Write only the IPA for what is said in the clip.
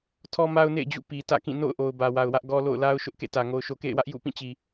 tʰɔ˦ma˦ʊ̯nḛ˦˨ɪ̯d͡ʑṵ˦˨ pi˨ tä̰˦˨kĩ˦˨ no̰˦˨ʊ̯ʔo˨ʊ̯ bä˨wa˨ʊ̯wä˦ʔ ɡɔ˦ lo̰˦˨ʊ̯la˦ʊ̯ ʃʊ˦ʔkḛ˦˨tä˨ ŋo˨ʊ̯ʃo˨kḛ˦˨ɪ̯wä˦ʔ jṵ˦˨pĩ˦˨t͡ɕi˨

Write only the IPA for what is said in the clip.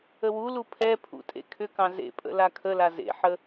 əwulu pʰɛpʰṵ tʼḛkʰʏkɑ̃ zḛpʼə̰ lakʰəla zḛħə

